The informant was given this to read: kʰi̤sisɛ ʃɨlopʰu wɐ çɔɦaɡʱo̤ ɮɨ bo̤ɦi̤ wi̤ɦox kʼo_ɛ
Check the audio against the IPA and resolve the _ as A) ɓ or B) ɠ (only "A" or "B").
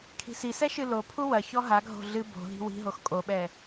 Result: A